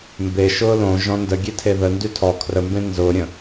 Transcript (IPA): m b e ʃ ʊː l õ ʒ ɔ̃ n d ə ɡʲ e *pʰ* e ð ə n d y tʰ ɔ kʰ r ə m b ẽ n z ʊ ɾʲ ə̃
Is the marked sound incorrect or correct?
incorrect